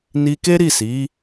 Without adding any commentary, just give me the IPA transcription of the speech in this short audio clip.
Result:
n i˧ k e˦ ɾ i˦˨ s i˨˦

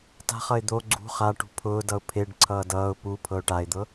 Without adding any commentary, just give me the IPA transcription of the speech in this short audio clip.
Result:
t a̤ χ ʌ ɪ̯ d̪ o ɡ͡ǀ ṳ χ a ʈ ṳ pʰ ʊː d ʌ ʊ̯ pʰ e ɖ ǀʰ ʌː d ʌː ʊ̯ p u pʰ ɤ ʊ̯ ʈ a ɪ̯ d̪ ɤ

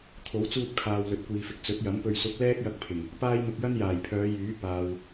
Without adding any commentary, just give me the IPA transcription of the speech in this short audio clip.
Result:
t̪ʰ o˨˥ w t͡s uː˧ p̚ kʰ aː˨ w l ɵ˨ t̚ kʷ iː˨ f ɪ˨ k̚ t͡s ɵ˨˥ t̚ j ɐ˨˥ m p ɵ˧ ɥ s ʊ˨˥ k̚ l ɛː˥ k̚ j ɐ˧ k̚ pʰ ɪ˨˩ ŋ | p aː˥ j n̪ ʊ˧ k̚ j ɐ˥ n j aː˨˩ j pʰ œː˨˧ j yː˨˥ p aː˨ w

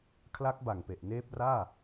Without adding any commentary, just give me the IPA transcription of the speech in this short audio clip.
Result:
kʰ l a˦˥ k̚ b a˨˩ ŋ p e˨˩ ʔ n eː˦˥ p̚ r aː˥˩

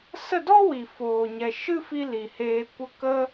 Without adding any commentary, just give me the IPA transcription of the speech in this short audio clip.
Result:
s ə˦˨ d ɔ˦ w i˨ f oː˨ ɲ ɛ˨ ʃ ɨ˦ f i˧ l i˨ h eː˧ kʷ ə˦ k ə˧

